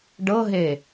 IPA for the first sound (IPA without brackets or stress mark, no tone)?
ɖ